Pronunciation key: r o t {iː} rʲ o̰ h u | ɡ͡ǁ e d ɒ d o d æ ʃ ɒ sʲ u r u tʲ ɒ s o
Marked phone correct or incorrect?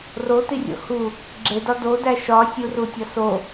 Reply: incorrect: i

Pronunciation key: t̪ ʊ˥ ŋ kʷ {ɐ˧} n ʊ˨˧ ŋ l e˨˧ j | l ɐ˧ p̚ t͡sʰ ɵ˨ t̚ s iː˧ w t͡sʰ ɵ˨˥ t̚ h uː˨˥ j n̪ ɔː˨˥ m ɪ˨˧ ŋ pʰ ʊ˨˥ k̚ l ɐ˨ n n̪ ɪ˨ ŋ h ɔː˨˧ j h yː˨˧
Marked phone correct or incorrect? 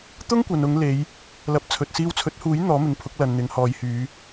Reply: incorrect: ɐ˨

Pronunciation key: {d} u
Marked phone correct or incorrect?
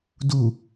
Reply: correct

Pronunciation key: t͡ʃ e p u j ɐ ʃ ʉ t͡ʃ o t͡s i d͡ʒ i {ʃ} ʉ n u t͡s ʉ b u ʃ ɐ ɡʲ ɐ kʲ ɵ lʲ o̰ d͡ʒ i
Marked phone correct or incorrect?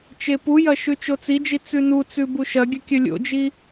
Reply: incorrect: t͡s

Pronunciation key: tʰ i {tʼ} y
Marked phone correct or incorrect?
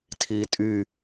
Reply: correct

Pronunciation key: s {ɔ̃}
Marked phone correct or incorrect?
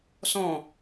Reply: correct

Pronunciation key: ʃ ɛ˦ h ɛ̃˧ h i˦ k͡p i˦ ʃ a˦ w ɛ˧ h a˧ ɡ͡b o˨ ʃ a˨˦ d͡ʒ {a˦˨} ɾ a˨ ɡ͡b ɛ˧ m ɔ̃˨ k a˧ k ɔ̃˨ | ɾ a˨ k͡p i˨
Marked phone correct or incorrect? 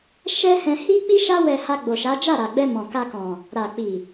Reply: correct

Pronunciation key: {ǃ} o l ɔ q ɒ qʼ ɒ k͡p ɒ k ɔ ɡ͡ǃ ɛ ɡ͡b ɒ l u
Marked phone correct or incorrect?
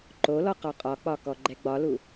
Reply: correct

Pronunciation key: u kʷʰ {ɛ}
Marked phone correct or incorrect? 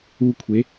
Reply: incorrect: e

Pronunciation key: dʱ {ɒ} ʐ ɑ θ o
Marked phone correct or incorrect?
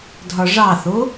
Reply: correct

